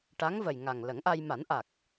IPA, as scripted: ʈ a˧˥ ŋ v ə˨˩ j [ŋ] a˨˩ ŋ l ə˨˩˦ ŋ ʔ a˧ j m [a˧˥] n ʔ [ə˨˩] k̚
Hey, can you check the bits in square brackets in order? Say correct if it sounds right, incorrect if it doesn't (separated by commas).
correct, incorrect, incorrect